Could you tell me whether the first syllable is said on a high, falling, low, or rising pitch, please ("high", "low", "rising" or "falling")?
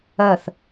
falling